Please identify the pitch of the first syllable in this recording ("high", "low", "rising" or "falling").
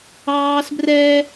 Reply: high